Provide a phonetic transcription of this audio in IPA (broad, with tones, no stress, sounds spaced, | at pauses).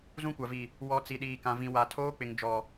z ũ˦ kʷ a˨ v i˨ | w ɔ˨ t͡s i˨ ɗ iː˨ k ã˨ v ĩ˨ w a˨ tʰ oː˦ k͡p ɪ˨ ŋ d͡ʒ ɔ˨